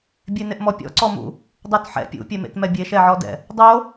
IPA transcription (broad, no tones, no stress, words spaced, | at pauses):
bʲenɪʔmɔpʲɔ̰ ǀɔmṵ | dˤutħɛ̰ pʲṵpʲɛmḛtmɛ bʲeʃɛʕɔdɛ̰ | dˤo